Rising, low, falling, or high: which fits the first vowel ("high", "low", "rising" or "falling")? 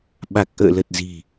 low